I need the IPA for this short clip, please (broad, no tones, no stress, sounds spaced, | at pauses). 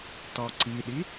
t ɔ ǀ i ɗ i